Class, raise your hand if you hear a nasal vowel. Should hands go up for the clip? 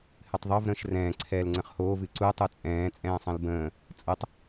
yes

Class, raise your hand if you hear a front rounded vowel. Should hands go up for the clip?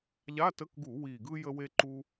no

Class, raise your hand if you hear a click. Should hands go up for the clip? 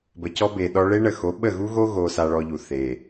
no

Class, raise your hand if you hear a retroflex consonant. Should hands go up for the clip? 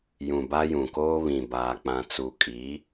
no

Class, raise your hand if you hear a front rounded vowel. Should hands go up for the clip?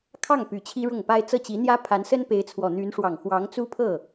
yes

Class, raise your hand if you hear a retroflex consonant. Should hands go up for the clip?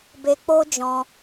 no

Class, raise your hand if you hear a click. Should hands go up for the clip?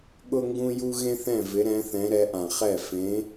no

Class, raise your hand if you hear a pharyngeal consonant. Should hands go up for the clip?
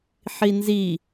yes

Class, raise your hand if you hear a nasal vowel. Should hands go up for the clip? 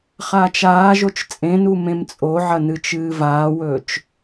yes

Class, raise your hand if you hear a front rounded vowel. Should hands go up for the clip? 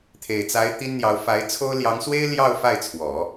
no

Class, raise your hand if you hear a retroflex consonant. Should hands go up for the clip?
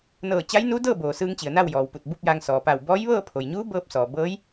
no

